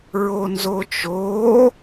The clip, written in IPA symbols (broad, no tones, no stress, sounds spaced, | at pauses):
ɹ o n z o t͡ʃ o